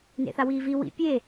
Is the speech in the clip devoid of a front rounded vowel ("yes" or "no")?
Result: yes